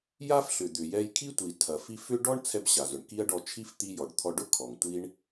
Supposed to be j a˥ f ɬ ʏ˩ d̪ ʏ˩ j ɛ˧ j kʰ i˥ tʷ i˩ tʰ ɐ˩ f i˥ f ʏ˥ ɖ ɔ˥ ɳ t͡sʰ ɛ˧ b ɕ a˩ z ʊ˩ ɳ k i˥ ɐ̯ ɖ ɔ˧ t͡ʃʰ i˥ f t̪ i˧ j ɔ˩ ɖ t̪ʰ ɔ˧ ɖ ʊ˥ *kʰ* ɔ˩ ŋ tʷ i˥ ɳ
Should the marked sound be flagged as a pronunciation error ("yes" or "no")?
no